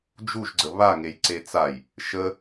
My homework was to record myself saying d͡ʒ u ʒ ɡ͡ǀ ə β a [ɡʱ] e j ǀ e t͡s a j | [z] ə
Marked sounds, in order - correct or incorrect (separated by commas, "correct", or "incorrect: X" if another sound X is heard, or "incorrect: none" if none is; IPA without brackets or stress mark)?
incorrect: ŋ, incorrect: ʃ